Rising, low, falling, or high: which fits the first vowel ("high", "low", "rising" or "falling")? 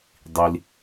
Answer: low